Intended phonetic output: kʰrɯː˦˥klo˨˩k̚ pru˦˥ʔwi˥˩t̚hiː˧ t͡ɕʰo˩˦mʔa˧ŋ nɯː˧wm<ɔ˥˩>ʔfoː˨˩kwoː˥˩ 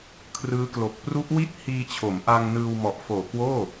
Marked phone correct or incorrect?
incorrect